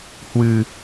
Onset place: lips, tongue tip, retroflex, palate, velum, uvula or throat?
throat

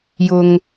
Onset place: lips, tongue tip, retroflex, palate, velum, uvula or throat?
palate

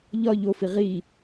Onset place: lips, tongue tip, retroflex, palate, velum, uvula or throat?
palate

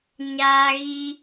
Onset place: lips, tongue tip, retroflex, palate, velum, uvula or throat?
palate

